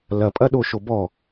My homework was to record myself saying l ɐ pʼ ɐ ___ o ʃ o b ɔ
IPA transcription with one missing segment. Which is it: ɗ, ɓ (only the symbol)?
ɗ